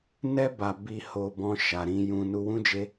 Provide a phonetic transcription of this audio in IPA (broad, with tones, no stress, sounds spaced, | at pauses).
n ɛ˧ b a˨ b i˨ h o˨ b ɔ̃˧ ʃ a˨ ɾ ĩ˧ j ũ˧ n u˧ w ũ˦ d͡ʒ e˦